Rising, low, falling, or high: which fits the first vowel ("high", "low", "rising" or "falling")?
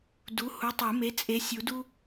rising